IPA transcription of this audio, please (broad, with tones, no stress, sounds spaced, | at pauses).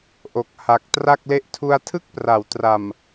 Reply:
ʔ o˨˩ k̚ h a˨˩ k̚ t r a˥˩ k̚ l e˦˥ ʔ tʰ u˧ a̯ tʰ ɯ˥˩ k̚ p r a˩˦ w t r a˨˩ m